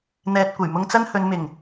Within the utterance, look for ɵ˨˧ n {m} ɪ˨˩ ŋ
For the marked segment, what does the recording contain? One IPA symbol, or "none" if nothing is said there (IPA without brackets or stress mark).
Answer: m